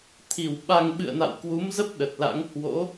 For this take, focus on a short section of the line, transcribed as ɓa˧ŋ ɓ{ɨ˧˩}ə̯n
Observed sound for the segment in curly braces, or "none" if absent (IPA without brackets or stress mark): ɨ̰˧˨